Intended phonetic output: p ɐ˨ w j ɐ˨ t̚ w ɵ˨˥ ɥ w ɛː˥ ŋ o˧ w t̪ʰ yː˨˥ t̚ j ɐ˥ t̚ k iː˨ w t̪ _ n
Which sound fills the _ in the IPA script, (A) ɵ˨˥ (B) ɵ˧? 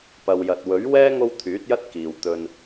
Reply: B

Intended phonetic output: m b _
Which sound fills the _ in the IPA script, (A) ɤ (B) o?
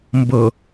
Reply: A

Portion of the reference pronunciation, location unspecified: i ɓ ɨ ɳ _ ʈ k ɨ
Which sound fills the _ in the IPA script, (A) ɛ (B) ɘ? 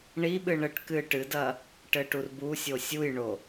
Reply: B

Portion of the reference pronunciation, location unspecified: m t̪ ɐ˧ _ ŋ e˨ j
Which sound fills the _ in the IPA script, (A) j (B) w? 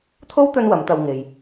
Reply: B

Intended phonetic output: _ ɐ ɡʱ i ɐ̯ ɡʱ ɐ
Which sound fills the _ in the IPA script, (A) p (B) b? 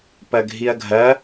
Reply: A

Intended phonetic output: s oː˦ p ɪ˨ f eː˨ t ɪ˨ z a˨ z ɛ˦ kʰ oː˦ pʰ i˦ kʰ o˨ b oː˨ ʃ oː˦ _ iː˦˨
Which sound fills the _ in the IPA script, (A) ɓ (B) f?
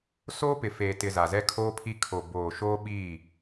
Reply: A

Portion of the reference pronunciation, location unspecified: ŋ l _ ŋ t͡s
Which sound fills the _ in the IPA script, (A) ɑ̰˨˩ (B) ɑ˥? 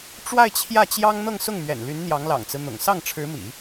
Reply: A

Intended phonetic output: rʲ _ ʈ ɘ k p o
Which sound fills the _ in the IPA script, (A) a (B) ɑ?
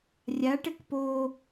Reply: A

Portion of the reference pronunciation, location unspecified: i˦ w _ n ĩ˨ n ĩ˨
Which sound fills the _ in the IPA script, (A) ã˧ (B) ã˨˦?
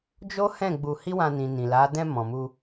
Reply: A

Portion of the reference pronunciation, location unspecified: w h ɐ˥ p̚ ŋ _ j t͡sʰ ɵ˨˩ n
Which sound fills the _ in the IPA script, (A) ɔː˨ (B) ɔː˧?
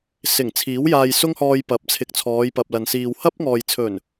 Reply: A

